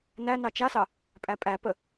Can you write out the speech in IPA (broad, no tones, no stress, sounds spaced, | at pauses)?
n æ n ɑ t͡ʃ a s ɑ | pʼ æ pʼ æ p ə